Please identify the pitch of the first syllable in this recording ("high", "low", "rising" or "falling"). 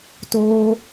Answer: high